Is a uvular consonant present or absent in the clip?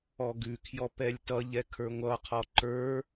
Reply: present